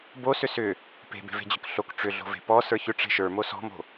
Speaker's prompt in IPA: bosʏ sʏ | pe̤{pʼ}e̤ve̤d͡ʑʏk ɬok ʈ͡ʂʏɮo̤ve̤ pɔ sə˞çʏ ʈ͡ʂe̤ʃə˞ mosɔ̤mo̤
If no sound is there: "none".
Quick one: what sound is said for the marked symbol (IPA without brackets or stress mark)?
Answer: b